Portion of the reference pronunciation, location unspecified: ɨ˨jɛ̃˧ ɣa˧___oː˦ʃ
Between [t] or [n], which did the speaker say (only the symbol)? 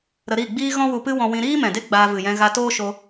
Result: t